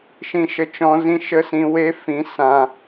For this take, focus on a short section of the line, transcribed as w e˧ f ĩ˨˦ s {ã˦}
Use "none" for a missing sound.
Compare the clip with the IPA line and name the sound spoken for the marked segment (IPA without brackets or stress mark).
ã˦